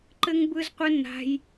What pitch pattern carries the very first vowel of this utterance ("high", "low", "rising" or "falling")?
high